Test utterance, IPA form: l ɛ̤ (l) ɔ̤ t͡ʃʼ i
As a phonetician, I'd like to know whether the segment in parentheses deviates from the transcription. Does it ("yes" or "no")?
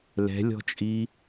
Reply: yes